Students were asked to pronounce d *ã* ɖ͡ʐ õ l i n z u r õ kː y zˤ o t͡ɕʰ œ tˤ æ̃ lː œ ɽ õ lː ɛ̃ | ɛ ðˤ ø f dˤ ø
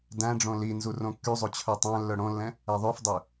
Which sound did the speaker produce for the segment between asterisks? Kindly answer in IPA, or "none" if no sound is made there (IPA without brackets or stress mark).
æ̃